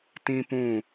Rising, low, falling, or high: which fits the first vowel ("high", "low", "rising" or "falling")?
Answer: high